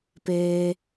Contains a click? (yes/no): no